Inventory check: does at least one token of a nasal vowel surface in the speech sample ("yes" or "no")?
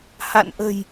no